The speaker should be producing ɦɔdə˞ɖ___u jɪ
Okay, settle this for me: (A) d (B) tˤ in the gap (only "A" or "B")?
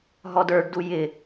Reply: A